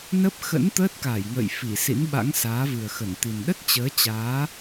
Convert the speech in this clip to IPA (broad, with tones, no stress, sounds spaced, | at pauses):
n ə˦˥ p̚ x ə̰˧˥ n t̪ əː˦˥ t̚ k aː˧˩ j ŋ ə̰ː˧˨ j f i˧˩ s ḭ˧˥ n ɓ a̰˧˥ ŋ s aː˨˦ v ɨ˨˩ ə̯ x ə˧˩ n t̪ i˨˩ n ɗ ə˦˥ t̚ t͡ɕ əː˨˦ t͡ɕ aː˨˦